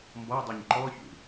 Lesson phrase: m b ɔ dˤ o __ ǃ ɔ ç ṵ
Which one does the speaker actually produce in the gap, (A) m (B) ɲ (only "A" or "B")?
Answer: B